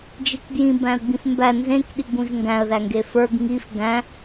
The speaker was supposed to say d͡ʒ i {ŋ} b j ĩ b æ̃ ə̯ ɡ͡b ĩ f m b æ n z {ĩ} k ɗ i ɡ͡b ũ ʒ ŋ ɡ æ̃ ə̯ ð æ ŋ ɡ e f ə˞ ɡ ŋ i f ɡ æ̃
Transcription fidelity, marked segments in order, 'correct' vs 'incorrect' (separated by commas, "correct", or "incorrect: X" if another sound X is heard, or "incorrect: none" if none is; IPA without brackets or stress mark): incorrect: k, incorrect: ẽ